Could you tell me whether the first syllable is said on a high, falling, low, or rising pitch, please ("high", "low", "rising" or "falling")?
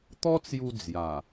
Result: high